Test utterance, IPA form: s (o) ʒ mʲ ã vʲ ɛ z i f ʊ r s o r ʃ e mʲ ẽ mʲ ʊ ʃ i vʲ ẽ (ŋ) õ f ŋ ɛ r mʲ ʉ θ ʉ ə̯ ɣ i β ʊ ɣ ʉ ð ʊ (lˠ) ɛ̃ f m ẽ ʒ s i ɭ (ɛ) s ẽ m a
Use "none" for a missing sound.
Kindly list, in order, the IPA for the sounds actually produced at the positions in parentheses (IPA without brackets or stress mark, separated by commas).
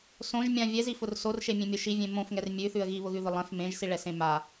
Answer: õ, m, lˠ, ɛ